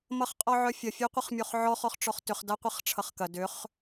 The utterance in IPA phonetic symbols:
m ʌ χ qʼ ɔ ʕ œ fʲ ɐ fʲ œ qʷ ɐ χ mʲ o χ ʕ ɔ χ ɔ χ ʈ͡ʂ ɔ χ t ʏ χ d a qʷ e χ ʈ͡ʂʰ ʌ χ k ɐ d ʏ χ

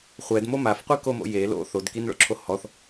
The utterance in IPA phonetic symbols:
χʷ ɛ d m o m a f qʷ i k o m o̰ j e l o̰ θ o d k i n ɭ o̰ ǁʰ o h ɔ θ

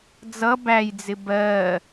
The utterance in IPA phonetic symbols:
d͡z ʌ b æ j d͡z ɪ b ɜ

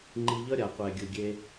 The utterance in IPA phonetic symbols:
ŋ͡ǃ i˧ ʎ ʌ˦ ɾʲ a˨ qʷ ɛ˨ ɡʲ ɯ˨ ɡʲ e˧

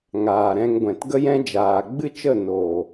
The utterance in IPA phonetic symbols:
ŋ aː˨ ɾ ɛ̃˧ ŋ ɡʷ ɛ̃˨ t ɡ ə˦ j ɛ̃˦ d͡ʒ aː˨ ɡ͡b ɨ˦ t͡ʃ ə˦˨ n oː˨

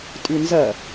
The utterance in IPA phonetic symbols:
tʼ ʉ n z ɐ

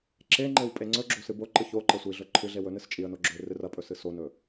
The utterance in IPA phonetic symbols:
ǁ e ŋ͡ǃ e w pʼ e ŋ͡ǀ ɵ ɡ͡ǁ o s ɨ b o ǃ ɨ ç o ǃ ɐ sʷ i ɮ ɵ ǃʰ ɨ ɮ e w ɵ n ɨ s t͡ʃʼ i ə̯ n o ɡ͡ǁ ɵ ɪ̯ r ɨ r ɐ pʼ ɵ s ɨ s o n ɵ

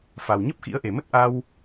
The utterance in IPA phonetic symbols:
f a˨˩ w ɲ ə˦˥ p̚ x ḭ˧˥ ə̯ ʔ e˧˩ m ə˦˥ t̚ ʔ a˧ w

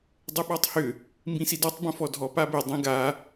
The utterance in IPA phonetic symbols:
dˤ ə ɓ ɔ tˤ h ʏ | m b ĩ s i d ɔ tˤ b ə̃ f ɔ dʱ ɔ p a b ɪ dˤ ĩ ɡ a

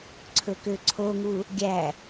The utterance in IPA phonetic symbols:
ǀʰ ɵ k ø ǀʰ o ŋ u | ɡʲ æ

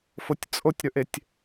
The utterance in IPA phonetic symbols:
f o tʲ t͡sʼ o tʲ ɾ ɵ ʔ e tʲ

